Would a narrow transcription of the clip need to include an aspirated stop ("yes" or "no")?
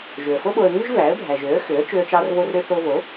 no